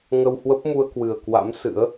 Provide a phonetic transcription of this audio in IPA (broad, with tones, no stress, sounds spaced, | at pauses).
ŋ ə˧ w h w ə˦˥ p̚ m u˧ ə̯ k w ɨ˨˩ ə̯ k w a̰˧˥ m s ɨ̰˧˥ ə̯